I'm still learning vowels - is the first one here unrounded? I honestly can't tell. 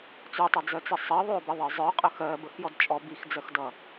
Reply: no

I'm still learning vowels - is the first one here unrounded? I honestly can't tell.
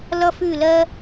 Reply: yes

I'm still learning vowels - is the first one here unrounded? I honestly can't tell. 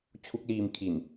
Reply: no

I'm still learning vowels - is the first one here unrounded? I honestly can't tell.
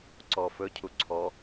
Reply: no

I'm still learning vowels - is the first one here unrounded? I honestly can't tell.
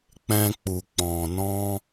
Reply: yes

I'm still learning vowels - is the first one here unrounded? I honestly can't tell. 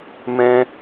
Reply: yes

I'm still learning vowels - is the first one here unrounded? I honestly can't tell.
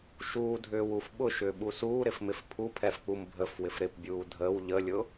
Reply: no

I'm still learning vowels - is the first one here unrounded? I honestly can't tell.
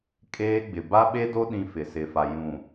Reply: yes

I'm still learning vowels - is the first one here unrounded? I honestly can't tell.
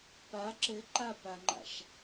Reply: yes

